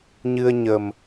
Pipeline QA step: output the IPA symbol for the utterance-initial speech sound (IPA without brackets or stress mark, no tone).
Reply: ɲ